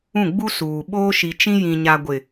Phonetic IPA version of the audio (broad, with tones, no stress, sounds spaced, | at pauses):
ũ˦˨ ɡ͡b u˦ s uː˨ ɓ oː˦ ʃ i˨ t͡ʃ ĩ˦ j ĩ˨ ɲ a˨ ɡʷ ɪ˨